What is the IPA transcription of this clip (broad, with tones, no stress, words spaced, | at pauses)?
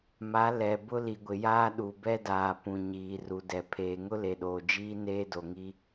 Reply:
ma˨˦ lɛ˨ bʊ˦li˨ɡʷɪ˨jaː˦ ɗu˨bɛ˦daː˨ pũ˨ ɲiː˨ru˨dɛ˨ pʰeː˨ŋʊ˦le˨ɗoː˨ d͡ʒiː˦neː˦ do˨ŋi˦